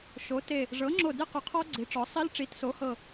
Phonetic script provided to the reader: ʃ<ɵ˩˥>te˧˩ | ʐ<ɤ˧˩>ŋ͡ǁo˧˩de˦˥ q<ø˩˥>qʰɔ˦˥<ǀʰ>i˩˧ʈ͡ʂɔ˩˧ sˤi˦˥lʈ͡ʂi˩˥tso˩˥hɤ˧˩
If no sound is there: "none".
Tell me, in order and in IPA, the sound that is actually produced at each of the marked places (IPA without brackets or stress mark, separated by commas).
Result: o˩˥, ɤ˩˥, ø˩˥, ɡ͡ǀ